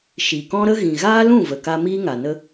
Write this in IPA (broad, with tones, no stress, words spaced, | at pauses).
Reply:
ʃi˨kɔ̃˦ɾə˦ ɣĩ˨ ɣaː˦lũ˦˨ və˨ka˧ miː˦ŋa˨ nə˦